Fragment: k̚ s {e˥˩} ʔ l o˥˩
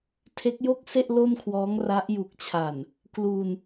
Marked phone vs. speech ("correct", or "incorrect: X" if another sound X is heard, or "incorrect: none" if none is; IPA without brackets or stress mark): correct